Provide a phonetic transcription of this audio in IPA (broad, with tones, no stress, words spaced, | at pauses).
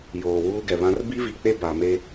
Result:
joː˨wuː˦ ɡɛ˨βã˦r bi˦vi˨k͡pe˦ ba˨ me˦